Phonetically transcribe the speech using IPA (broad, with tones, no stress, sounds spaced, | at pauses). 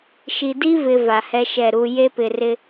ʃ i˨ d i˦ v ɪ˨ v a˨ h ɛ˦ ʃ ɛ˦˨ ɾ u˨ j e˦ p ɪ˨ r ɪ˦